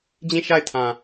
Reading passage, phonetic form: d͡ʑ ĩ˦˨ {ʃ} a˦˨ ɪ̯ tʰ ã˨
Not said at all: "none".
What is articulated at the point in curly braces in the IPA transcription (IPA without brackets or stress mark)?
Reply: ʃ